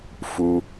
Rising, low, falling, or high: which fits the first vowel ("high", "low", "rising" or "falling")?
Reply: high